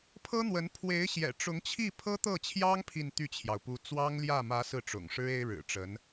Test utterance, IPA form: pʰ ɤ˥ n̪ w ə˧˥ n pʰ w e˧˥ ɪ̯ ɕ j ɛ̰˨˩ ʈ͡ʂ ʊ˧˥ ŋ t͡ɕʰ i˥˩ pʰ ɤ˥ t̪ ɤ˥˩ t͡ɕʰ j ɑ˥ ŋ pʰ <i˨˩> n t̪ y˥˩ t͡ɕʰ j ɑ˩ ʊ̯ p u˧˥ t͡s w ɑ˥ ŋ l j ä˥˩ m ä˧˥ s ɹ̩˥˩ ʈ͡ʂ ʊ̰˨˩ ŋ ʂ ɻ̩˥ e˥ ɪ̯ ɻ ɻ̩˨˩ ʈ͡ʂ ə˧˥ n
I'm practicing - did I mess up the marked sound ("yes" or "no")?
yes